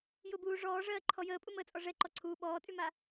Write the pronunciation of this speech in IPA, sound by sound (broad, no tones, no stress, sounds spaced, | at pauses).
j ʊ b uː ʐ ɔː ʐ ɜː ǃʰ ɔ j əː pʼ u m əː t͡sʼ ɔ ʐ ɛ ǃ ɔ ǀʰ uː ɓ ɔː tʼ y m a